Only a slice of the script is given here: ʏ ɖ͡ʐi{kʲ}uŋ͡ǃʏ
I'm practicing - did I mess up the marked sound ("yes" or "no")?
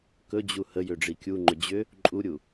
no